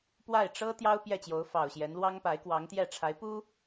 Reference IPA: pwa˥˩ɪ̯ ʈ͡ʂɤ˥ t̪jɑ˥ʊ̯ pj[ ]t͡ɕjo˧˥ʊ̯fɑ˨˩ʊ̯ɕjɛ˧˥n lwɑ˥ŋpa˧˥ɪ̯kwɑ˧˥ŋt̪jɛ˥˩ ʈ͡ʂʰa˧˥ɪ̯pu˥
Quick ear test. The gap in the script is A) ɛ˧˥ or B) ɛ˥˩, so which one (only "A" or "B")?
B